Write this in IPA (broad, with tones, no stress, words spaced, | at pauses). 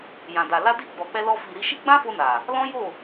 jã˨da˨ la˧di˧ ɡ͡bɔ˨k͡pɛ˧lɔ˧ fi˨ɾi˧ʃi˦ ɡ͡bã˦fo˧ na˨ | lɔ̃˦jo˦˨